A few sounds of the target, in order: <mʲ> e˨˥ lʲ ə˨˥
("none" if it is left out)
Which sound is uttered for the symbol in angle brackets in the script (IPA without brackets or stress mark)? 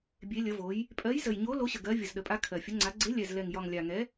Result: bʲ